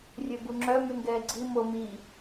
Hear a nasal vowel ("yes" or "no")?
no